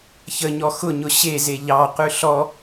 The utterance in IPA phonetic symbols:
ç ə ɲ ɔ x ʊ ɲ ʊ ɕ e z e ʎ ɑ q ʉ ɬ ɔ

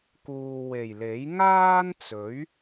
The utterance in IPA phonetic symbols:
k uː˨ w e˨˩ j l e˨˥ j ŋ aː˥ n t͡s ɵ˨˥ ɥ

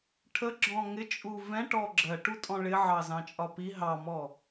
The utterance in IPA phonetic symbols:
ʈʰ ə ɡ͡ǁ ɔ̃ ŋ ɪ t͡ʃʼ u v ɛ̃ ʈ ɔ ɡ͡ǁ ɜ ʈ u tʼ ɔ̃ ɭ ɪ ʕ ɑ z ɑ̃ t͡ʃʼ ɒ p i ɦ ɑ m ɔ

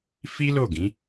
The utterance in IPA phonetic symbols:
f i˦ l o˦˨ ɡ ĩ˨˦

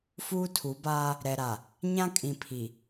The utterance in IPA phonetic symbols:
f uː˦ tʰ u˨˦ b aː˦ | ɾ ɛ˨ ɾ a˨ | ɲ ã˦ kʼ ĩ˨ pʰ i˨

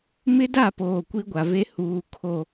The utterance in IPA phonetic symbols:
m ɪ˦ d a˦˨ p oː˨ kʷ i˦ ɡʷ a˨ v e˦ h uː˨ kʰ o˨

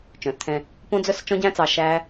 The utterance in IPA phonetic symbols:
t͡ʃ œ̃˨ θ t̪ʰ ɛ̃˧ | p õ˦ d͡z œ˦ s t͡ʃ ɔ̃˦ ɟ æ̃˦ t͡s ɑ˧ ʃ æ˦

